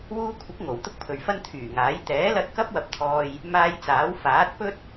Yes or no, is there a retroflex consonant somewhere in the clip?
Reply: no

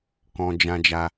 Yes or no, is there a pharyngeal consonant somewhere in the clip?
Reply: no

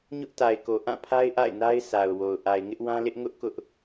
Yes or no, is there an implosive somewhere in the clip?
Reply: no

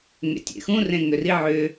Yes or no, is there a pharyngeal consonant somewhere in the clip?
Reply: yes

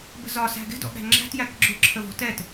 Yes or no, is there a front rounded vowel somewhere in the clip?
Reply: no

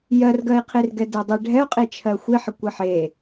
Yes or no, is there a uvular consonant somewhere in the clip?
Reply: yes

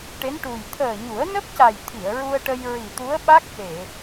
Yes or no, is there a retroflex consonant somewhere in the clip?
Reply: yes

